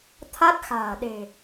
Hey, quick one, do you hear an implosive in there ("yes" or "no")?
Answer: yes